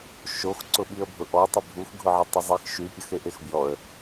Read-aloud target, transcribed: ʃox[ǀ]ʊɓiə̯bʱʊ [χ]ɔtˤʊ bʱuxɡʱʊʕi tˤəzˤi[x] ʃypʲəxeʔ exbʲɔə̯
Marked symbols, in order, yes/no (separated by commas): yes, no, yes